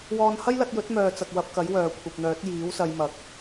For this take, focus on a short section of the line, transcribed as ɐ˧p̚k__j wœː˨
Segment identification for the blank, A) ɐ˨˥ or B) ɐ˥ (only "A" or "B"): A